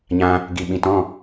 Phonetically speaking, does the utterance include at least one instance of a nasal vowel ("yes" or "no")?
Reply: yes